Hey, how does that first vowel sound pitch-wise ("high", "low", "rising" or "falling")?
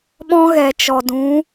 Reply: high